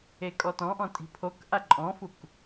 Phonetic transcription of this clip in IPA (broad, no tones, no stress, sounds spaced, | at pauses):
e kʼ ɔ t ɔ̃ ʔ ɔ̃ tʼ i̤ pʰ o k ʔ a ǃʼ ɔ̃ f u k